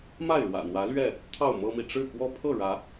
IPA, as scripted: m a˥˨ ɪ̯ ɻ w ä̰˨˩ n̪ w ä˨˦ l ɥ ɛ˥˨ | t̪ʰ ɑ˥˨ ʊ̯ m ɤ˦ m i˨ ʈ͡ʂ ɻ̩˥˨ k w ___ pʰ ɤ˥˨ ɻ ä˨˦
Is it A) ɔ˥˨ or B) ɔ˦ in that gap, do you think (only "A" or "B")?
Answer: B